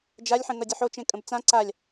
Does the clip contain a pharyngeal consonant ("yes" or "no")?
yes